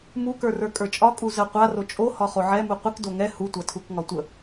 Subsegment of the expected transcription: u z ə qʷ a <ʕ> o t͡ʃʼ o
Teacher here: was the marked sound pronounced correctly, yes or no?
no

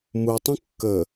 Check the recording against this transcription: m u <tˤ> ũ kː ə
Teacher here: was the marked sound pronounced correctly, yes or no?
yes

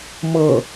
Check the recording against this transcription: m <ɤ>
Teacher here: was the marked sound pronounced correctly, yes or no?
yes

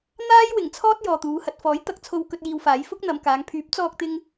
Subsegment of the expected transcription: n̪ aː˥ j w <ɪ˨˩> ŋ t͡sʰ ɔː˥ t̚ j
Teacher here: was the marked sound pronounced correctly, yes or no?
yes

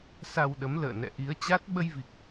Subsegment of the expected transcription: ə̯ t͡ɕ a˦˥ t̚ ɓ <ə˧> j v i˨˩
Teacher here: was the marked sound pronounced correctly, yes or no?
yes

